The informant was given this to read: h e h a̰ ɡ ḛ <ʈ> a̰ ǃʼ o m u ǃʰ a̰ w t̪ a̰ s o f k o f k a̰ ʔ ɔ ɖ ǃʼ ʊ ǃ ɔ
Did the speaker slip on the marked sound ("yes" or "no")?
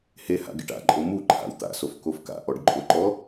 no